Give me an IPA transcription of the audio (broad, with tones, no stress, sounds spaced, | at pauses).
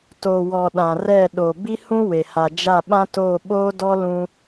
t o˨ w ɔ˨ ɗ ã˨ r ɛ˦˨ ɗ o˨ b i˦ h ũ˦ w e˨ h a˨ d͡ʒ a˦˨ ɓ ã˦ t oː˦˨ ɓ oː˦ d ɔ˦ l ũ˦